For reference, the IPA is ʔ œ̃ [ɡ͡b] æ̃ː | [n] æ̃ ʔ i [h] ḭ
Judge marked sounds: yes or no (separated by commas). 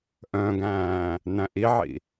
no, yes, no